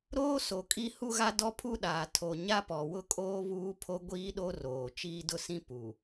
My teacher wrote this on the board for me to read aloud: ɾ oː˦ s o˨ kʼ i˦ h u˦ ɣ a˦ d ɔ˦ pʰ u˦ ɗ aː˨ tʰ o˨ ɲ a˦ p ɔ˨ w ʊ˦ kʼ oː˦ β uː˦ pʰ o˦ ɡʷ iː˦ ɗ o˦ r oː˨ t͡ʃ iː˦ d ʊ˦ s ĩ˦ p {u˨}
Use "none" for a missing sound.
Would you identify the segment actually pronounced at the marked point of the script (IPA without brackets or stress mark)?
u˨